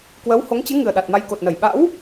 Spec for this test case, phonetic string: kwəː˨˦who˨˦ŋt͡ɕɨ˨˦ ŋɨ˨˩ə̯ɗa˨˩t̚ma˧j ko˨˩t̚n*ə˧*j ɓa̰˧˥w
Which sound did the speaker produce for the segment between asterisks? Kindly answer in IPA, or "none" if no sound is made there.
ə˧˩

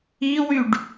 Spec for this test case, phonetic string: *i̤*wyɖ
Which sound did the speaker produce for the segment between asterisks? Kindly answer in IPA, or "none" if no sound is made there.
i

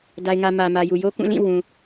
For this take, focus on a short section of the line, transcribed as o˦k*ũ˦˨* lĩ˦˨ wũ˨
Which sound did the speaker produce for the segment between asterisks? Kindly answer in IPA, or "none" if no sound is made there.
ũ˦˨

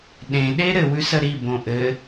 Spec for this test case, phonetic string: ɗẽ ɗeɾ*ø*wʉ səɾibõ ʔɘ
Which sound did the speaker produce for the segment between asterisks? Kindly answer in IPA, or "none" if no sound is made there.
ɘ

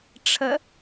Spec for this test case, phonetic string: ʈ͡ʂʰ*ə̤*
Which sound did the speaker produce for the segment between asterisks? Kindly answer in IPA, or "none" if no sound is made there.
ə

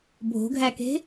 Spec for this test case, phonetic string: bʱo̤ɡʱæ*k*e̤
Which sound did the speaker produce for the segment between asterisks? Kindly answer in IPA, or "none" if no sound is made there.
k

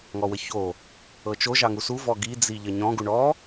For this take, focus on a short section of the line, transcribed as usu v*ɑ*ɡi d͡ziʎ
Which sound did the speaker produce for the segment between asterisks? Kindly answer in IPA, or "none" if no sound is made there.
ɔ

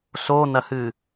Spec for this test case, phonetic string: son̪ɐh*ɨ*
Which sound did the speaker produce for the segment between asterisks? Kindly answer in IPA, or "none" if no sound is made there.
ɨ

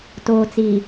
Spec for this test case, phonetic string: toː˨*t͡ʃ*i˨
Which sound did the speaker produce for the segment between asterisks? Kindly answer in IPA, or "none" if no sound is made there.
t͡s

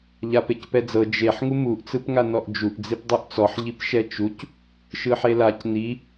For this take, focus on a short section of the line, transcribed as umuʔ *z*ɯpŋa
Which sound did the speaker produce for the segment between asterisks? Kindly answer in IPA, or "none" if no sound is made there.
t͡s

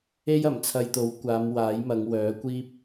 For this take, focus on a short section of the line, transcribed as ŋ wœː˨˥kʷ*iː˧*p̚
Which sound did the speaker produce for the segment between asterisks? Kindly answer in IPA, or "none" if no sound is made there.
iː˥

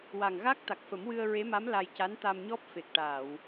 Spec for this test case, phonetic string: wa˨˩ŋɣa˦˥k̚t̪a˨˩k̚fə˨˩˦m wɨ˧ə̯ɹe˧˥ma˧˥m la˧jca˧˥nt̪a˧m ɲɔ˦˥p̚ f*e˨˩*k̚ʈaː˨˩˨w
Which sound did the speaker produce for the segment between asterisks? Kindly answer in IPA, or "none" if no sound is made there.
e˨˩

